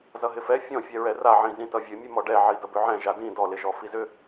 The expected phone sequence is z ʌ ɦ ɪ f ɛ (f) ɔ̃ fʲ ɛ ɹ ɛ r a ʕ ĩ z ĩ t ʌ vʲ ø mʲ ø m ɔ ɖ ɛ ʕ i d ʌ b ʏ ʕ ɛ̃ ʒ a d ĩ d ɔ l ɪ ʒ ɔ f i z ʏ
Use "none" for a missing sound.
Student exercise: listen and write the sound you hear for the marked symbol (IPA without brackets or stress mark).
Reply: fʲ